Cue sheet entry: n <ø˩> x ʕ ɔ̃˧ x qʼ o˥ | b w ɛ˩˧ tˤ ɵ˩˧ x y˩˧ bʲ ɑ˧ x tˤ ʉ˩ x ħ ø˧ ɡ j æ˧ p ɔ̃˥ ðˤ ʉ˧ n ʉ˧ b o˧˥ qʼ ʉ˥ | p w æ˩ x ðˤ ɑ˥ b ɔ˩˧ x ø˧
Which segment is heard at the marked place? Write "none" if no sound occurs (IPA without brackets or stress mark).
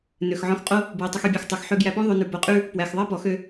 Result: ø˩